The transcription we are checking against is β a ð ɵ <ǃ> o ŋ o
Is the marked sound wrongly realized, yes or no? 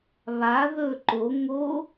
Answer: no